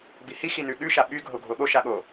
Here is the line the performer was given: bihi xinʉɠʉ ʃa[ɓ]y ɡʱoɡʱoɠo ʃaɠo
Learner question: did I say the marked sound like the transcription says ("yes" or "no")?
yes